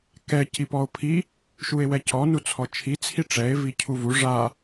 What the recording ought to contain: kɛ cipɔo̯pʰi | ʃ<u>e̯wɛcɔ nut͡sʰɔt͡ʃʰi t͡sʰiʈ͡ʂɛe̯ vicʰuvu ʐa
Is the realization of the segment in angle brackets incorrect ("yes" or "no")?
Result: no